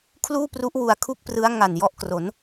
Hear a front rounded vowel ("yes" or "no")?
no